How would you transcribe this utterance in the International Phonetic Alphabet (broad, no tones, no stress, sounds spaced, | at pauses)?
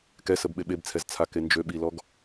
k ɛ s ə b ɓ e ɓ e b t͡sʰ ɛ z t͡sʰ a k e n d͡ʒ ø ɓ i l ɔ ɡ